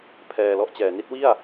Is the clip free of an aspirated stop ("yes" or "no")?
no